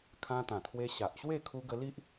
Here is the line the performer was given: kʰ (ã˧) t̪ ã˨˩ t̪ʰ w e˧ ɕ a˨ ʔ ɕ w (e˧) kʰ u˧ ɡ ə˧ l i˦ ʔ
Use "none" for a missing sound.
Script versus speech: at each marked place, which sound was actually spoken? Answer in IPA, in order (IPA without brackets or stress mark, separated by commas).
ã˧, e˥˧